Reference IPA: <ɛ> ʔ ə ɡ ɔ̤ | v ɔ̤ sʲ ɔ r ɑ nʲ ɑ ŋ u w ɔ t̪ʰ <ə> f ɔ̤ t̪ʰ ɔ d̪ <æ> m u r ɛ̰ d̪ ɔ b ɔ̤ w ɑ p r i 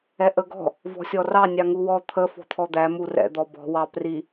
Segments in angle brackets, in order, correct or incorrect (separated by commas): correct, correct, correct